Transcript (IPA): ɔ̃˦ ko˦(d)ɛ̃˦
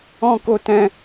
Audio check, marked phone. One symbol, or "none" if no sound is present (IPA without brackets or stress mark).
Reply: t